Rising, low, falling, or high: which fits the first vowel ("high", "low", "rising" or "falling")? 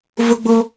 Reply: high